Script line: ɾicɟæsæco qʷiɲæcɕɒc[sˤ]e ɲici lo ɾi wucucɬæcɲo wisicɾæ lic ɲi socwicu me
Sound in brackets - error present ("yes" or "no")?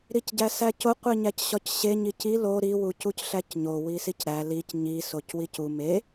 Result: yes